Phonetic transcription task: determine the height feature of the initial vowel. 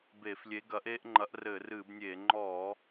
mid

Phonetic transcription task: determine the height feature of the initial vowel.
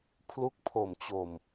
high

